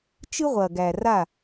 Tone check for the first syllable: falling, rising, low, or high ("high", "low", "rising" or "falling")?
high